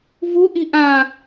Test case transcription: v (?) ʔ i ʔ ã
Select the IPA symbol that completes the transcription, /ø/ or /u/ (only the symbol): u